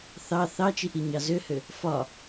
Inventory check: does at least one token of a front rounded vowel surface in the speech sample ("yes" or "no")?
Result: yes